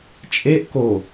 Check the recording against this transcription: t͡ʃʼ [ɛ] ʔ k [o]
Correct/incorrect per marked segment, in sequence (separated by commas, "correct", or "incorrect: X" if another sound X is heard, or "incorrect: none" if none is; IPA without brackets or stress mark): incorrect: e, correct